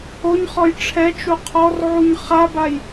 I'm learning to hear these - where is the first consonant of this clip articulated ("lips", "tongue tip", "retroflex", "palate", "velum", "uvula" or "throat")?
palate